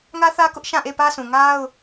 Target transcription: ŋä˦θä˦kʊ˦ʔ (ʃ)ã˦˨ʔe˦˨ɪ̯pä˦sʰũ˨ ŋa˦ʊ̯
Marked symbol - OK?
yes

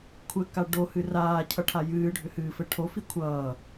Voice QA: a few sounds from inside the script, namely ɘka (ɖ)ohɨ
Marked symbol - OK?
yes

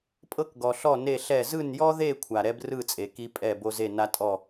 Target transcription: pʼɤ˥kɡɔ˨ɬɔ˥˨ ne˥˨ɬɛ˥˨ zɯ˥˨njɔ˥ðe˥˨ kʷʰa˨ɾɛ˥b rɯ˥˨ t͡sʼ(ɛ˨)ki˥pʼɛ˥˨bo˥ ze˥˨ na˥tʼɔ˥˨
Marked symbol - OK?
no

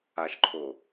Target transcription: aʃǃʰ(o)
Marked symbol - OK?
yes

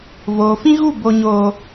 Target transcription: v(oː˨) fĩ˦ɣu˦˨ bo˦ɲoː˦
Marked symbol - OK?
yes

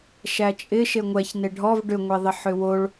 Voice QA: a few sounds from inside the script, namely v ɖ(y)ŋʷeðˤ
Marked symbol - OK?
no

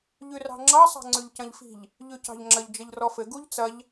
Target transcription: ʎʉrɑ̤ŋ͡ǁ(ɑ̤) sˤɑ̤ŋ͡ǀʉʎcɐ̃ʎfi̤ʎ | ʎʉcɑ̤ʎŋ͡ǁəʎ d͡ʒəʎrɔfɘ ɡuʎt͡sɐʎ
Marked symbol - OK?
no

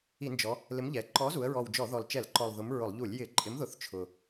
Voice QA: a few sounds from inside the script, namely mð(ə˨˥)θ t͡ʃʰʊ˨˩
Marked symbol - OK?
no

